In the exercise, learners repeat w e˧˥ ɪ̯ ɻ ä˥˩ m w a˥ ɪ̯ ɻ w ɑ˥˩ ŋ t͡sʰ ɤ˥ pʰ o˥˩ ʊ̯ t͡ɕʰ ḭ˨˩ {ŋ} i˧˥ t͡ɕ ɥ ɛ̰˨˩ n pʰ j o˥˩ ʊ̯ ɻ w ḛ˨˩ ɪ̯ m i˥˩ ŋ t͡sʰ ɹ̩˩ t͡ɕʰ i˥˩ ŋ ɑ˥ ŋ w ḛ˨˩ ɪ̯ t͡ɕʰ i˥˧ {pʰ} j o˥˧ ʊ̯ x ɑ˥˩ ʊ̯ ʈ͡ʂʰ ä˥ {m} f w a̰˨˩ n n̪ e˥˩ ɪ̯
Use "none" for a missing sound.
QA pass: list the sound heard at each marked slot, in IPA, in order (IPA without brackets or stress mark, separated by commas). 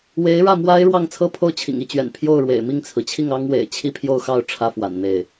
ŋ, pʰ, none